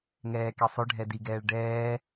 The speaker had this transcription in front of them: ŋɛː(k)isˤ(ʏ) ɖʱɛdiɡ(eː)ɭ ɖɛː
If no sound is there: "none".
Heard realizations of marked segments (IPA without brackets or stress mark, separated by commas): k, ʏ, ɛː